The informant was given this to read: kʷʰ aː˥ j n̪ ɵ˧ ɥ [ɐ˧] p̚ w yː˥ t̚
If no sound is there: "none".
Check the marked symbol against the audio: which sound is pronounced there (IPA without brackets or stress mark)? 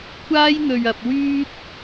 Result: ɐ˧